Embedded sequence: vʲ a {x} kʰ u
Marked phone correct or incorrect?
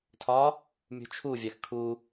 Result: correct